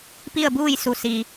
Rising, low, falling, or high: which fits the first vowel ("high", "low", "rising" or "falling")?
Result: falling